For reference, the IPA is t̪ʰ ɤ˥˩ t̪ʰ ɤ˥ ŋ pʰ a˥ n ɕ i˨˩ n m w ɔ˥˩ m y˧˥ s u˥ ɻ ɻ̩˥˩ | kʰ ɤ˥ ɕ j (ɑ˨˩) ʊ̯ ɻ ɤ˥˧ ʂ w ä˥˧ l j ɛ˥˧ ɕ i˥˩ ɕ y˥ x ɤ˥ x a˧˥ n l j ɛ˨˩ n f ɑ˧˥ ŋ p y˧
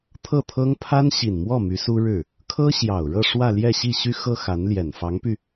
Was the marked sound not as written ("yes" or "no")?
no